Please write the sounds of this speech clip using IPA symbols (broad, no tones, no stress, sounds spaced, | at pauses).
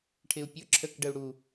ʈʰ ɪ u̯ pʲ ʊ ǁʰ ə k ɖ ə u̯ ɽ u